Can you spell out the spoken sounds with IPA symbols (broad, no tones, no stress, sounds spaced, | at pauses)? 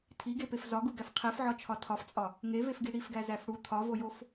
tʰ i ɡ e p e f z ɒ ɡ u ɡ æ f qʰ i f ʕ ɒ t͡ʃʰ ɒ tʰ ɒ f t͡sʼ ɒ | ŋ e v e f ɡ i ɽ i f ɡ æ z æ f ɽ u t̪ʰ ɒ v o j o f